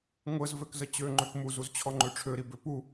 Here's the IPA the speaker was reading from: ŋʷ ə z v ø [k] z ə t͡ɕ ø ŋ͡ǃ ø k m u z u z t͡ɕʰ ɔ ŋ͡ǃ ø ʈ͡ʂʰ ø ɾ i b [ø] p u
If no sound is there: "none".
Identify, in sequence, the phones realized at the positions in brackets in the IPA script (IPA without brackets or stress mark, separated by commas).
k, ø